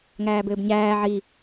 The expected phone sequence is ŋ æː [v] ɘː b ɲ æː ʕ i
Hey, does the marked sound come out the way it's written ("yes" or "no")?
no